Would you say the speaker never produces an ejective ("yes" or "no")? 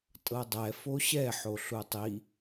no